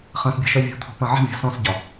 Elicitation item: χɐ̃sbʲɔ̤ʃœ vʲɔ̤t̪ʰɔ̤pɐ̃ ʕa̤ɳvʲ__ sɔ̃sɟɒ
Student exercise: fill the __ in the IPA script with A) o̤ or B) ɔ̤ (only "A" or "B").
B